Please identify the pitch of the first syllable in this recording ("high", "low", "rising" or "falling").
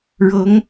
rising